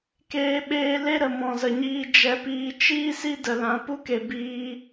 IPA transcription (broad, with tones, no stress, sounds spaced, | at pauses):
k eː˧ ɓ eː˧ l e˦ ɾ ə˨ m ɔ̃˨ z ə˨ ɲ iː˧ d͡ʒ ɛ˧ p iː˧ t͡ʃ iː˦ s i˦ d ə˨ l ã˨ p u˦ k e˨ b iː˧